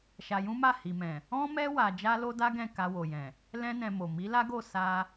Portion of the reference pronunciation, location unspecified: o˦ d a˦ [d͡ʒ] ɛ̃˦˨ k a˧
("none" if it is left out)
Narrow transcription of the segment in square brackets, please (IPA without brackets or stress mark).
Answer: ɡ